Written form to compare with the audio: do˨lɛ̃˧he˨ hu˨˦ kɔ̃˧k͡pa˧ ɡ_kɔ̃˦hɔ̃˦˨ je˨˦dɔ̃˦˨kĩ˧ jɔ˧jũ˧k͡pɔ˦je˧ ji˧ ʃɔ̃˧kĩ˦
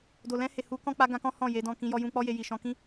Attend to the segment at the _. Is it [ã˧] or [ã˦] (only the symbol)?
ã˧